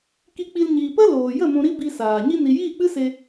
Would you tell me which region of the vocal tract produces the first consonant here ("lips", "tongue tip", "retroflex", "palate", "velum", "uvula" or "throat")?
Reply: velum